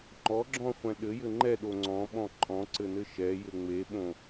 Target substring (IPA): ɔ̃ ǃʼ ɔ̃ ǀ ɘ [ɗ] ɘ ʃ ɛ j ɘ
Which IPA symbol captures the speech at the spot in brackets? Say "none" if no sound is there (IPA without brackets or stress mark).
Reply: n